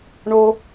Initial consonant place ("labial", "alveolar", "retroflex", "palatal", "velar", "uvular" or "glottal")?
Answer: retroflex